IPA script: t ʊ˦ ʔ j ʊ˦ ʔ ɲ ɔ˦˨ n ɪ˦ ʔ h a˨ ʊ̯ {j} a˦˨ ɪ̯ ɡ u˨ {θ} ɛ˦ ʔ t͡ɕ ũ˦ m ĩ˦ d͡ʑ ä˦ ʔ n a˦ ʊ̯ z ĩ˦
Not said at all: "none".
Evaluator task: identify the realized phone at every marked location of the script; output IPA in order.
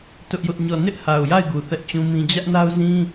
j, θ

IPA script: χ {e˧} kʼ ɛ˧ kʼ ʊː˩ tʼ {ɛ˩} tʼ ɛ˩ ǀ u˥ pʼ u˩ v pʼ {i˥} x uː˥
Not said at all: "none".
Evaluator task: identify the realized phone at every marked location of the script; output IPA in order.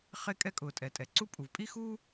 e˧, ɛ˩, i˥

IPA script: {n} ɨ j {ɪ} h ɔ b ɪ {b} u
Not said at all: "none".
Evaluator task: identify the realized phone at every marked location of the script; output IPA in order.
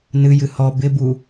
n, ɨ, b

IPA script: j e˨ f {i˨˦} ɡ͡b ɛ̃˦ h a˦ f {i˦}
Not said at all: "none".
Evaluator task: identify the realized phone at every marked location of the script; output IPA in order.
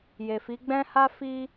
i˨˦, i˦

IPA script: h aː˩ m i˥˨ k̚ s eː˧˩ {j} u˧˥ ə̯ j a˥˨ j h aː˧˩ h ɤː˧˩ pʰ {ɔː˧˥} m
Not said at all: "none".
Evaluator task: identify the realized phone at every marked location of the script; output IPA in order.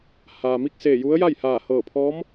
j, ɔː˧˥

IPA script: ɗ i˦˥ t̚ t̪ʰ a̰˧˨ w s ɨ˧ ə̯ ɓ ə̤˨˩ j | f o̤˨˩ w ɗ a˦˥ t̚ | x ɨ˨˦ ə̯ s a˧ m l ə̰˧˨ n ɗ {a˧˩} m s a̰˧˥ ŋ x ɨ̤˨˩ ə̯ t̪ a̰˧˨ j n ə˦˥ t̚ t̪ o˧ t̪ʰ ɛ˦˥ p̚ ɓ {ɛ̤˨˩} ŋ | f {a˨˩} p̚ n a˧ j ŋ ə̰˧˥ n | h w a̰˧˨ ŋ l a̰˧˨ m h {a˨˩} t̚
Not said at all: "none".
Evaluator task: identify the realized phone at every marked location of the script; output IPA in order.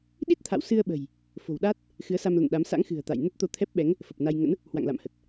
a˨˦, ɛ˨˦, ə˨˩, ə˨˩

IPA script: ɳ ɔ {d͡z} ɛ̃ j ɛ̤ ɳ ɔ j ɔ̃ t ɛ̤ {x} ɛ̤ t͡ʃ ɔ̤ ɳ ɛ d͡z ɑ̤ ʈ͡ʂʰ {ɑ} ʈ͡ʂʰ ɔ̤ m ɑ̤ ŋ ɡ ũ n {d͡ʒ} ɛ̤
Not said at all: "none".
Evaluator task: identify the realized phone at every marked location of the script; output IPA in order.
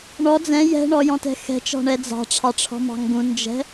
d͡z, x, ɑ, d͡ʒ

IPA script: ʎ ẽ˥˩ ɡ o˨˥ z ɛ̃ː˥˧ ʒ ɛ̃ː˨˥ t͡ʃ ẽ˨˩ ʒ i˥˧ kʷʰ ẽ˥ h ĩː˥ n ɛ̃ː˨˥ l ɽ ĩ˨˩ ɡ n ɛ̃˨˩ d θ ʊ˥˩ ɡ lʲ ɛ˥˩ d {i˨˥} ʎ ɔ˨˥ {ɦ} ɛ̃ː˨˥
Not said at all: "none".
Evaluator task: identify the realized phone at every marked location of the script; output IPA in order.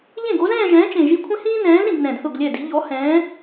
i˨˥, h

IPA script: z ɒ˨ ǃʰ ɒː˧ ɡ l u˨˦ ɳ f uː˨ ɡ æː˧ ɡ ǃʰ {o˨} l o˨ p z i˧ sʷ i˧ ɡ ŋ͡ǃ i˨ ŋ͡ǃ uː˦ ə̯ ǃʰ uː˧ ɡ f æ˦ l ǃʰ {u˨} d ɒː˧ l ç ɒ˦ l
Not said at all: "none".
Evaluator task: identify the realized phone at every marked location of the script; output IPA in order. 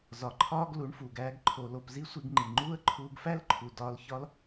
o˨, u˨

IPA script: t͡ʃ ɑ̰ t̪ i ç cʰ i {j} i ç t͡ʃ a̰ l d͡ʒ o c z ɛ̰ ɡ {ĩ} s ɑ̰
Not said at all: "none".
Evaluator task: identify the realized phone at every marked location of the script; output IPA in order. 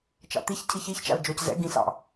ç, ĩ

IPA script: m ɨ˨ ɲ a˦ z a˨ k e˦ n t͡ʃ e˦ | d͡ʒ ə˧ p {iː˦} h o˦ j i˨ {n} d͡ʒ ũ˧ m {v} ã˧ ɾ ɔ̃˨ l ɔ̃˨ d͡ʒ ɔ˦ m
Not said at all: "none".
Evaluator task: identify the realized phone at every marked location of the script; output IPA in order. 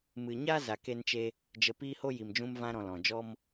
iː˦, m, v

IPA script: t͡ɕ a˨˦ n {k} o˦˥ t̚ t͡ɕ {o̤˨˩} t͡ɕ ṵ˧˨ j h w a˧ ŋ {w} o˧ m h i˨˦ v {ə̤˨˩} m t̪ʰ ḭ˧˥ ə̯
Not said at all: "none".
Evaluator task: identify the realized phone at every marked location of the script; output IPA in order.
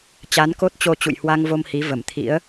k, o˧, v, ə˧˩

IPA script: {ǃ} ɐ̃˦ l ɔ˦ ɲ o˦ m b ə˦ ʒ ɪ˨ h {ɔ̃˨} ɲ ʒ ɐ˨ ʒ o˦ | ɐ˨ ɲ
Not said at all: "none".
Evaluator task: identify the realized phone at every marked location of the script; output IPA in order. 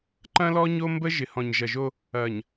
ǃ, ɔ̃˨

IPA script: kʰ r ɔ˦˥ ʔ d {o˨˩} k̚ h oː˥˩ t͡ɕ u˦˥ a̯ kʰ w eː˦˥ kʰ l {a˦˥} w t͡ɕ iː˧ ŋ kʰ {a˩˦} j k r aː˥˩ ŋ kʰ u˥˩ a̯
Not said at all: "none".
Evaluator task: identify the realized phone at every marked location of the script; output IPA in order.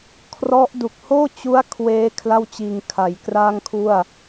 u˨˩, a˥˩, a˩˦

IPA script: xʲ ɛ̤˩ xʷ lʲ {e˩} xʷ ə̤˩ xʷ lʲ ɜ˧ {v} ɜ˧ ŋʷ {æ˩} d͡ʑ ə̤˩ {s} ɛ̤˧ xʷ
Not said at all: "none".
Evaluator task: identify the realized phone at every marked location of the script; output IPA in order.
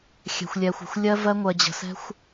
ɛ˩, v, ɜ˩, s

